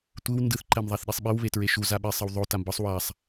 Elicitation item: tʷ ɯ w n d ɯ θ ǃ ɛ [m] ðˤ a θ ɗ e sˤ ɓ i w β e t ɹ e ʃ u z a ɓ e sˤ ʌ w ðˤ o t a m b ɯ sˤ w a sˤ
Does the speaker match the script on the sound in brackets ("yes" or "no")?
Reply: yes